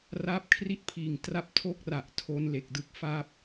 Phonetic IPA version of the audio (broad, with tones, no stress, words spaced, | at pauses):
raː˦˥p̚kʰri˥˩t̚pʰiː˨˩ŋ tra˥˩p̚ tʰo˥˩k̚ra˨˩ʔ tʰo˦˥nle˨˩k̚dɯ˦˥k̚ fa˦˥p̚